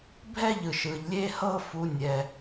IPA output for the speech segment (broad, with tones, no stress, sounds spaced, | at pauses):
bʱ ɛ˦ ʎ ɯ˩ ʃ ɯ˩ ʎ lʲ e˦ h ɤ˦ f u˨ nʲ ɛ˩